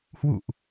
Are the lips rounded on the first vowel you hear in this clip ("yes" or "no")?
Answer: yes